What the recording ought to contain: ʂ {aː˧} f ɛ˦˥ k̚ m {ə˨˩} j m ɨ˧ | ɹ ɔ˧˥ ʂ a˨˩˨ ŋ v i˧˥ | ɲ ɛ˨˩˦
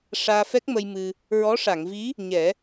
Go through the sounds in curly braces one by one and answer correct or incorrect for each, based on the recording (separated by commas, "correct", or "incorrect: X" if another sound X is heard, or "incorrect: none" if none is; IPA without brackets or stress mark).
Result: correct, incorrect: ə˧